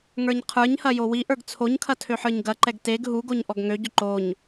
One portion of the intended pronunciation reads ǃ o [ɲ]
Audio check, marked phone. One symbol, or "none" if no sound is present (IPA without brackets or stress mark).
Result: ɲ